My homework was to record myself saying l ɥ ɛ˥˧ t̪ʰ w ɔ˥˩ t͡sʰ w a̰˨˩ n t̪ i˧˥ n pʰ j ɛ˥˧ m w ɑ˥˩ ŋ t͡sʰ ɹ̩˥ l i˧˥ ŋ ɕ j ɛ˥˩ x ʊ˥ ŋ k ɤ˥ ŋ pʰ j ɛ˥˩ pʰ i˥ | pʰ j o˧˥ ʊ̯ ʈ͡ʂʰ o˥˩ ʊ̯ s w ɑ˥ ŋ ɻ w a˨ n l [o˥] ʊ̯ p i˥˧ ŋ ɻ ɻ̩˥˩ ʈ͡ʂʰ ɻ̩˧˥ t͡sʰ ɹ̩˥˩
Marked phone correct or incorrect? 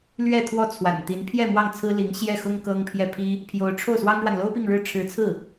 correct